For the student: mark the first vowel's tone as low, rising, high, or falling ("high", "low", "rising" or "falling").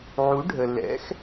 rising